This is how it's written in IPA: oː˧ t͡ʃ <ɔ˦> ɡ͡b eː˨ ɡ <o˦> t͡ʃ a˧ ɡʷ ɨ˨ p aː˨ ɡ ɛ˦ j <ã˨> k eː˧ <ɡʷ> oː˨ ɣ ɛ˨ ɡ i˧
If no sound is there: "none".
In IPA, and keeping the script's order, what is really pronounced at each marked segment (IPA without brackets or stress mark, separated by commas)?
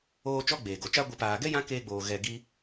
ɔ˦, o˨, ã˦, ɡ͡b